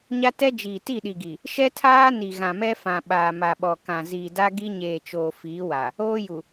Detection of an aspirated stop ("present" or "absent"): present